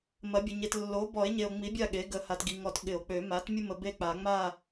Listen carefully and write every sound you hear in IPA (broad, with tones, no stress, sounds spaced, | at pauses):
m ɐ˩˥ bʲ ə˨ ɲ e˨ t lː o˩˥ b ɔ˨˩˦ e̯ ɲ e˨ o̯ ŋ͡m i˩˥ bʲ a˦˨ ɠ e˩˥ ɡ ə˩˥ h a˨ t ɡ i˨ ŋ ɔ˨˩˦ t ɠ ɪ˨˩˦ o̯ k͡p ø˨˩˦ m a˩˥ t mʲ ʊ˦ m ə˨ b e˦˨ k͡p a˨˩˦ ŋ͡m a˦˨